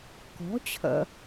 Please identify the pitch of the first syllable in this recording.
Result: rising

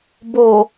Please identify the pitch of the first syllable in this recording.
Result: low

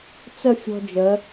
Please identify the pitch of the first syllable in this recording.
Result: falling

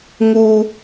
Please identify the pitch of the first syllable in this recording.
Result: high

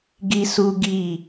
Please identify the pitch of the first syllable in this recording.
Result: high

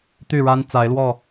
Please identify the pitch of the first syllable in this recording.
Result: falling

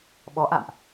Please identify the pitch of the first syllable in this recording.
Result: rising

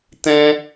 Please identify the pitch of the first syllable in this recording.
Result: high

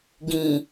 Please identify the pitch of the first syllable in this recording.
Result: low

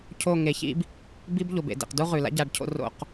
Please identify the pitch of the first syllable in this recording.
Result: falling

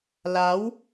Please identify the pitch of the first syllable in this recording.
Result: rising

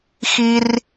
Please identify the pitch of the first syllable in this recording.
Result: high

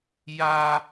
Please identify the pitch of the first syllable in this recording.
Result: high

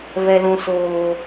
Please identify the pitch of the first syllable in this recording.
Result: low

